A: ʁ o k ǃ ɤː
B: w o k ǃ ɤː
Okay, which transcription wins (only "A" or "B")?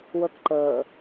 B